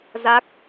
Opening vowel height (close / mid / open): open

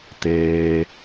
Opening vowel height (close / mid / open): mid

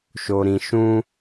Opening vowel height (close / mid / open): mid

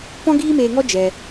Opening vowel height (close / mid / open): mid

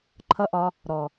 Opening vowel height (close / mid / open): mid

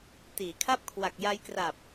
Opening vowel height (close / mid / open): close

